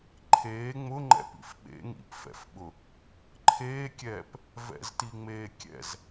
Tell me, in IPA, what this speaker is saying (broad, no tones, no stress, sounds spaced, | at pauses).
ǃʰ eː ŋ͡m ʊ ŋ͡ǃ ɛ̰ p ḭ f ɓ ḛ ŋ ḭ p f ɛ̰ f ɓ ʊ | ǃʰ eː kʲ ɛː p | v ɛ̰ z t i ŋ͡m eː kʲ ɛ̰ z